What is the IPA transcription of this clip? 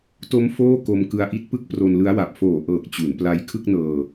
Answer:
t o˦˥ m f oː˥˩ k o˧ m k ɯ˧ a̯ ʔ i˥˩ t̚ p ɯ˥˩ k̚ p r o˧ n l ɯ˦˥ a̯ w a˨˩ p̚ f oː˨˩ ʔ ɤː˨˩ k̚ t͡ɕ u˩˦ n p l a˧ j kʰ ɯ˥˩ k̚ n ɤː˧

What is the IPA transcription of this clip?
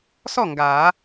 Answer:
s ɔ˥˩ ŋ ɡ a˨˩˦

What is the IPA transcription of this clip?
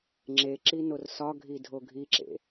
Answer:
ŋ͡ǁ e ǁ i n o r s ɒ ɡʱ i dʱ o ɡʱ i ǁ ḛ

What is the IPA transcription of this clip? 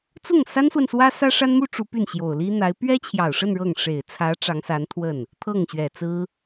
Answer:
t͡s ʊ˥˩ ŋ s a˥ n s w ə˨ n s w ä˥ s ä˥ ʂ a˥ n m u˥ ʈ͡ʂ u˧˥ p y˥˩ n ɕ j o˨˩ ʊ̯ l i˥ n̪ a˧˥ ɪ̯ p ɥ ɛ˥ t͡ɕʰ j ɑ˨˩ ʊ̯ ʂ ə˥˧ n ɻ ɤ˥˩ ŋ ʂ e˨˩ ɪ̯ t͡sʰ ä˧˥ ʈ͡ʂ ɑ˧˥ ŋ s a˧˥ n t̪ʰ w ə˥˩ n | t̪ʰ ɤ˥˩ ŋ ɕ ɥ ɛ˨˩ t͡s ɹ̩˥

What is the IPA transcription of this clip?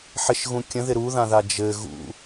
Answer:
ħ ɪ ʃ ɣ ũ kʲ ə̃ ð ɪ ɾ u ð ã ð a d͡ʒ ɘ ɣ ṵ

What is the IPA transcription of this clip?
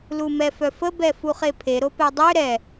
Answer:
l u m ɛ f œ f ə b ɛ f u χ e pʰ e ɾ o p ɛ dˤ ø ɾ ɛ

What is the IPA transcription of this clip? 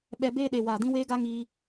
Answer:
ɓ ɛ˧ b eː˧ ɗ e˨ w aː˨ d ĩ˧ w eː˦ ɡ a˦ ŋ iː˧

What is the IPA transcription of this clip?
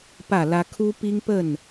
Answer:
p ä˥˨ l ä˦ kʰ u˦ p i˦ ŋ p ə˥˨ n

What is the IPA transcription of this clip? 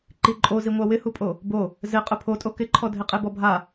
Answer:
ǃ i ǃʼ o z i ŋʷ a w ɪ h u pʼ o | b o | z ɪ qʼ ʊ pʰ o tʼ o k ɪ ǃʰ ɔ dʱ ɪ qʼ e b ɔ bʱ a

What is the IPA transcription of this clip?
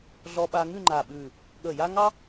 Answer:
ɮ ɔ˧ ɓ a˧ ŋ ʉ˥˧ ŋ͡ǃ a˧˩ ɓ ʉ˧˩ | ɠ ə˧˩ j a˥ ŋ ɑ˥

